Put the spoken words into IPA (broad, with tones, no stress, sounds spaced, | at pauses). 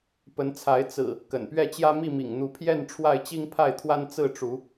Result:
p ə˨˦ n t͡sʰ a˨˦ ɪ̯ t͡s ɹ̩˨˩ | k ə̰˨˩ n p ɥ ɛ˥˨ t͡ɕ j ä˦ m i˥˨ m ḭ˨˩ ŋ n̪ u˨˦ pʰ j ɛ˥˨ n ʈ͡ʂʰ w a˥˨ ɪ̯ t͡ɕ i˦ ŋ pʰ a˥˨ ɪ̯ t̪ʰ w a˦ n t͡s ɹ̩˥˨ ʈ͡ʂ u˨˦